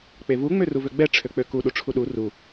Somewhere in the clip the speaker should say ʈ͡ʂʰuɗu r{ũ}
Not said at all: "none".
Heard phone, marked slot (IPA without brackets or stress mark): u